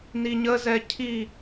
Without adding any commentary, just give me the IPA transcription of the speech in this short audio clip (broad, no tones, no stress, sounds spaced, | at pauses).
n i ɲ ə z ɛ cʰ i